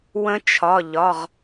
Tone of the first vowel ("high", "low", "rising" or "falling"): rising